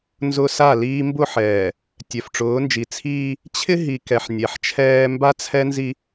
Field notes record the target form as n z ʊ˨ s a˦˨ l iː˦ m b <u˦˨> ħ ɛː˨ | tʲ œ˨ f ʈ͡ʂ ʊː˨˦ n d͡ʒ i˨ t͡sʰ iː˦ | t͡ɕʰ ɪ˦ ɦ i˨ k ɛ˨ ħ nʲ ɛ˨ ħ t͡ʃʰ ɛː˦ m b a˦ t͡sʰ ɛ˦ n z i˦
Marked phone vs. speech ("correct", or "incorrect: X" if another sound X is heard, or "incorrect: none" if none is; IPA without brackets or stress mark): incorrect: ʊ˦˨